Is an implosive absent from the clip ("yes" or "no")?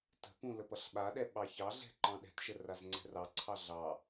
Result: no